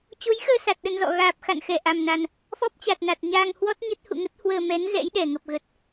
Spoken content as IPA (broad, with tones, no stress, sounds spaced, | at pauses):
t͡ɕ o˨˦ j x əː˧ s a˨˩ t̚ ɗ ə˧ n z ɔ̰˧˨ ɣ aː˨˩ p̚ x a̰˧˨ n x ɛ˧˩ ʔ a˨˩ m n a˨˩ n | f ɔ˦˥ p̚ t͡ɕ a˨˩ t̚ n a˨˩ t̚ ɲ aː˧ ŋ h w ɔ˦˥ t̚ ɲ ə˦˥ t̚ h ṵ˧˨ ŋ ə˦˥ t̚ h w əː˧ m ɛ˨˦ n z ɛ̰˧˥ j ɗ ɛ˧˩ ŋ ə˨˩ p̚ ɣ ə˨˩ t̚